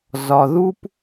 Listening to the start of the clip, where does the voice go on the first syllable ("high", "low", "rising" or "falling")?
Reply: low